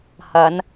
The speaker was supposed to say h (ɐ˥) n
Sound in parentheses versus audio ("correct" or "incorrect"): incorrect